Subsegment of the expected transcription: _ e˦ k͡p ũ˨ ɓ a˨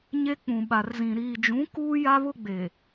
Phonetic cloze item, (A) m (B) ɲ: B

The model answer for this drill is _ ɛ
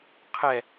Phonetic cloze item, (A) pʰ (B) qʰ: B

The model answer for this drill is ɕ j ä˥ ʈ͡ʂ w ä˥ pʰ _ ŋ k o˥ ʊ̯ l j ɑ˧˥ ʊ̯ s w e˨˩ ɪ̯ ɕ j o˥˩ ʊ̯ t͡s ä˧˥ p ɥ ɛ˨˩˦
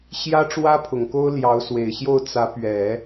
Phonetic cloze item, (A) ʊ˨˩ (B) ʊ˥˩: A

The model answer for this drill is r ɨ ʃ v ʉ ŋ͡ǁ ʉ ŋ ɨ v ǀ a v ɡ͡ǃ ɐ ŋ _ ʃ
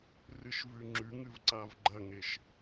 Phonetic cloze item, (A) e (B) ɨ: A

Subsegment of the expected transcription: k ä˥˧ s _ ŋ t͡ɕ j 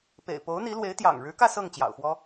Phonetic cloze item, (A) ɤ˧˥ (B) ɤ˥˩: B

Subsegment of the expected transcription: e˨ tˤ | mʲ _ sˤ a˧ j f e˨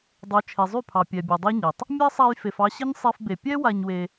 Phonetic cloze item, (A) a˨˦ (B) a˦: B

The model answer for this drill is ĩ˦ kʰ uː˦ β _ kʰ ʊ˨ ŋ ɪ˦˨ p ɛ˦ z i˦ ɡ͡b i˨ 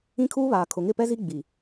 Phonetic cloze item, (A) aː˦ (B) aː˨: B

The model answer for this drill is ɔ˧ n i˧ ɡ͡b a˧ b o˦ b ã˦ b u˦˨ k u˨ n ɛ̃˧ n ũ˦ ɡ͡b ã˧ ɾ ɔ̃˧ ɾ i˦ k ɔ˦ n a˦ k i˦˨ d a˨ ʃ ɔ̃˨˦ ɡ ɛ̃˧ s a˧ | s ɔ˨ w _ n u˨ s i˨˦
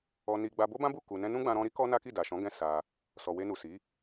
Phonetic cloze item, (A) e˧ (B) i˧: A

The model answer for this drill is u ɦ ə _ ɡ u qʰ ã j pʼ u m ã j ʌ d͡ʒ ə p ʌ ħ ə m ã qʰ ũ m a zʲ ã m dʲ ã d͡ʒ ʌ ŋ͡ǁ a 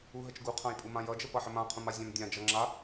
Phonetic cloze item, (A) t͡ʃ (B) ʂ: A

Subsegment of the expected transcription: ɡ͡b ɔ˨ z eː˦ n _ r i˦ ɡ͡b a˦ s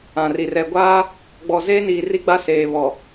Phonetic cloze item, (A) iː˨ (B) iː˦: A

